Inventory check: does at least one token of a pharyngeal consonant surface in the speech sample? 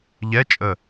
no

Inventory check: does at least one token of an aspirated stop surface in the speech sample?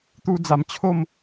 yes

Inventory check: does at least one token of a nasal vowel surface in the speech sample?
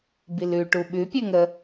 no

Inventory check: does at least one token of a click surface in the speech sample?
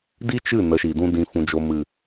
no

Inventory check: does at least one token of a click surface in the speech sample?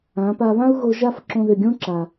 yes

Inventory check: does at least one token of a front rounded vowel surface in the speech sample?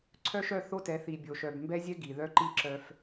yes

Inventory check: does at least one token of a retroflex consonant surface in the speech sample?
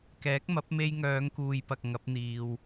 no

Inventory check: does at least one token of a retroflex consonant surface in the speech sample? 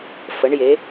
yes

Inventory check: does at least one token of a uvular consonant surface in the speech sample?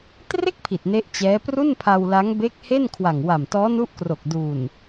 no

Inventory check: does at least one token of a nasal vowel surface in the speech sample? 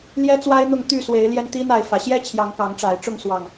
no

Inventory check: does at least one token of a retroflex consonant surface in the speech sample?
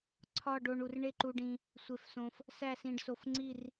yes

